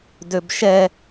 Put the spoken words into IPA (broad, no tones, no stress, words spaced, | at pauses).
døbʃɛ